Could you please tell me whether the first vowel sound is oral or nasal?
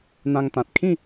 nasal